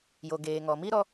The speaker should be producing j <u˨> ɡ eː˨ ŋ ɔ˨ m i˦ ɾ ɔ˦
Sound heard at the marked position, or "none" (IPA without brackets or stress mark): o˨